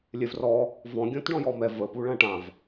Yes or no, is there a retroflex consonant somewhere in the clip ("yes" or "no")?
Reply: yes